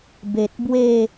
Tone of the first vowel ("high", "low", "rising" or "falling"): low